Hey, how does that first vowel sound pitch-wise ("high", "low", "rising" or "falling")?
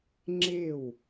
falling